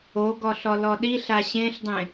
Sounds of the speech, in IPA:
o ɡ ɔ ɬ ɔ l ɔ ɗ i ɬ a ɕ ẽ ɬ dˤ ẽ

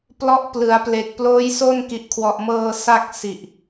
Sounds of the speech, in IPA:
p l ɔ˦˥ ʔ p l ɯ˩˦ a̯ p l e˨˩ k̚ p l oː˦˥ j s o˥˩ n k i˨˩ ʔ kʰ w ɔ˨˩ ʔ m ɤː˧ s a˥˩ k̚ s i˨˩ ʔ

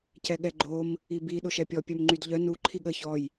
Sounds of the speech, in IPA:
c ɛ ɠ ɛ ɡ͡ǃ o m | i b i ɗ o ʃ ɛ pʲ ɔ pʲ œ m ŋ͡ǃ y d ʎ œ n u ǃʰ i ɠ ə ç ɔ j

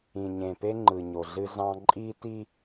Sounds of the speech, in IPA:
ĩ˨ ɲ ẽ˨ p e˦ ŋ͡ǃ ɯ˨ ɲ o˨ ɮ ɨ˦ z ɑ̃˦ ǃʼ i˦ t i˦

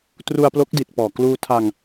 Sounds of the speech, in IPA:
t r u˧ a̯ p l o˦˥ k̚ d i˨˩ t̚ p ɔː˨˩ k l uː˧ tʰ a˧ ŋ

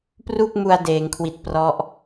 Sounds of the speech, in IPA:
p r u˥˩ k̚ m u˧ a̯ d eː˩˦ ŋ kʰ w i˨˩ t̚ p r ɔ˦˥ ʔ

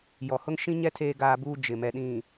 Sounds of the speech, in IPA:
j ɔ˨ h ʊ˦ ŋ ʃ ĩ˦ ɲ ɛ˦ tʰ eː˦ ɡ aː˦ b uː˦ d͡ʒ ɪ˨ m ɛ˨ ɗ ĩ˨

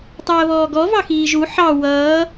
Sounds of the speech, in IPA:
tˤ əː β ɔː ɡ ɔ v ɑ x iː ʒ u ħ ɑ w ʌː

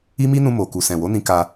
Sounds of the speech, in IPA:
i˦ m i˦ n ũ˧ m o˨ k u˨ s ɛ̃˨ w o˨˦ n ĩ˧ k a˧

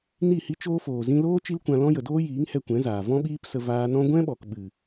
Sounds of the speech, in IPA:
n i˦˨ h i˦ t͡ʃ oː˦ f oː˨ z ĩ˧ l oː˦ t͡ʃ i˦ l kʷ ã˧ l ɔ̃˦ j ə˨ d oː˦ j iː˨˦ ŋ h ɛ˧ kʷ ɛ̃˨˦ z aː˨ v ɔ̃˦ ɓ iː˦ p s ə˧ v aː˧ n ɔ̃˦ ɡʷ ɛ̃˦ ɓ ɔ˨ k ɓ ɨ˨

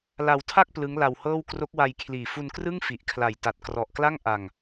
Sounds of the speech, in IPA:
l a˧ w tʰ a˥˩ k̚ p l ɯ˦˥ ŋ l a˧ w h ɤː˥˩ w k r o˦˥ k̚ w a˧ j kʰ l iː˨˩ f u˧ n k r ɯ˥˩ ŋ f i˨˩ ʔ kʰ l a˨˩ j t a˨˩ t̚ k r ɔ˨˩ ʔ k l a˥˩ ŋ ʔ a˧ ŋ

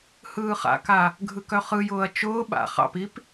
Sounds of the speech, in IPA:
h ɯː χ a̰ k a | ɡʱ ɯ k œ χ ɯ j ʊː ɐ̯ t͡ʃ ʊː ɓ a̰ χ ɑ̰ p i p

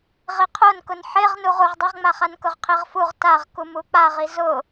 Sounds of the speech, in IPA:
ʁ i qʰ o n k ʊ n ħ e ʁ n u ʁ u ʁ dˤ i ʁ ŋ͡m a χ a n k ʊ ʁ qʰ i ʁ f u ʁ t a ʁ k u m u k͡p a ʁ i z ʊ

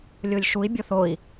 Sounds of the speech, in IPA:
lʲ o lʲ ʃ u i̯ bʲ o θ o i̯

